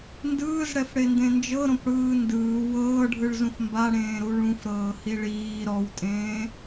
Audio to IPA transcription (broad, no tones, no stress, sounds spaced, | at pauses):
n d ɯː z ɽ ɛ f ɽ e n d ẽ n d͡ʒ ɤ ɾ õ p ɽ ɯː n d ɯː w ɤː ɖʱ ɯ ɭ z ũ f m b a ɽ ẽː ɾ u ɭ ũ f ɾ ɤː h i ɭ iː ɾ ɔ w tʼ ẽː